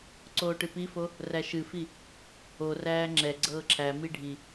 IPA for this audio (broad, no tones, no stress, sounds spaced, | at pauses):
ǀ oː ʈ ɨ p i f o | r æ ʃ ɨ f i | o r æː ŋ͡ǁ ɛ ɡ͡ǀ ɤː ǁʰ æ m i ɖʱ i